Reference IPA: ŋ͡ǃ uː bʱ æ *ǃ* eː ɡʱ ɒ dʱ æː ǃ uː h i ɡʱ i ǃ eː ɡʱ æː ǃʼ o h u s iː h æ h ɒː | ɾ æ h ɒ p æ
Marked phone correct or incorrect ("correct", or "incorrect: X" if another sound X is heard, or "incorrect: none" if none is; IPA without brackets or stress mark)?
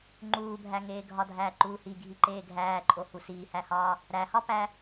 incorrect: ŋ